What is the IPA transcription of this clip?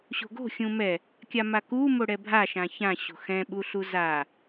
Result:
ɕ o̤ ɡ o̤ xʲ ũ m ɛ | kʲ a m a k u m o ɽ ɛ bʱ a ʃ ã ç ã ɕ o̤ x ɛ̃ ɓ u ɬ u z a

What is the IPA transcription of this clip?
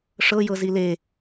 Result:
ʂ ɤ j ɤ z i l e

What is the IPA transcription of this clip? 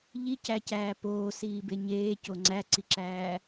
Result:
ʎ i c æ c æː p oː s iː b e ɲ eː c o ŋ͡ǀ æ ǀ i ǁ æː

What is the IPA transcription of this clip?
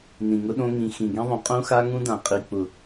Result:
n ĩ˨ ŋ ʊ˦ ɗ õ˦ ŋ ĩ˨ x ĩ˨ ɡ ĩ˦ ðˤ ũ˨ qʼ ũ˦ x a˦ ŋ ũ˦ d ã˨ qʼ i˨ k͡p ʊ˨

